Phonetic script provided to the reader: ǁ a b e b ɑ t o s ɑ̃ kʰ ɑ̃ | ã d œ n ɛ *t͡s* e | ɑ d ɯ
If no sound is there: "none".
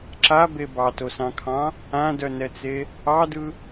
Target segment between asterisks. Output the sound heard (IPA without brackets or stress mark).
t͡s